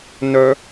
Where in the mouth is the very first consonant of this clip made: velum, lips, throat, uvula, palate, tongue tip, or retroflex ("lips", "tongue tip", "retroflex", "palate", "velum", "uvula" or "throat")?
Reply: tongue tip